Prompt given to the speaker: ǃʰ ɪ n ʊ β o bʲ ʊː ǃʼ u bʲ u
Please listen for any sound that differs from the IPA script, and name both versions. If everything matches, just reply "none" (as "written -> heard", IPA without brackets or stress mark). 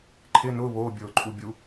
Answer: none